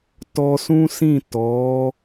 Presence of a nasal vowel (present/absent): present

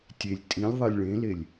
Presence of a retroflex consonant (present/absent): present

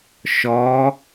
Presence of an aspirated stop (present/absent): absent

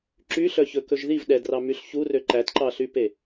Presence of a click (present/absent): present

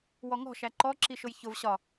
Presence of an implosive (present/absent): absent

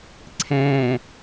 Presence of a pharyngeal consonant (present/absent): absent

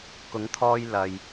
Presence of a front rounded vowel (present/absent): absent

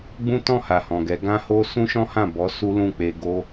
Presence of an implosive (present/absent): absent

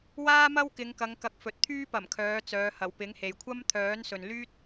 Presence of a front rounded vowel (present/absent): present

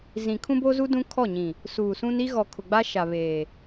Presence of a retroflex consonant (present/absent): absent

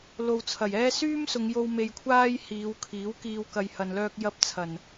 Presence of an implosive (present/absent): absent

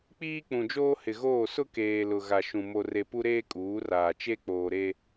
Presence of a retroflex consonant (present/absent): absent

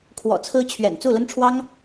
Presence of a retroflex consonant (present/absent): present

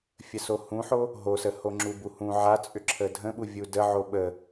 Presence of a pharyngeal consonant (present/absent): present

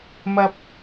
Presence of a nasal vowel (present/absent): absent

